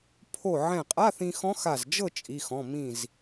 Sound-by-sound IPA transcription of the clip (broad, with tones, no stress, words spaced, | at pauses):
pʰo˧˩ʕɛ̃˧˩qʼa˧˥˧θĩ˧ xɔ̃˧˥xa˧˩zd͡ʒɤ˥˨ t͡ʃʼi˩˧˩xɔ̃˩˧˩ mĩ˧˩z